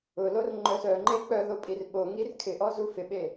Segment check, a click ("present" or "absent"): present